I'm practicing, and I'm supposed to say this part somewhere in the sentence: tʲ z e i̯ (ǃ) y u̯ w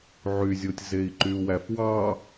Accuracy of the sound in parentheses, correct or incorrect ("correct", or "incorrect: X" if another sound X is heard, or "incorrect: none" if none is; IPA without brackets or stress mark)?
correct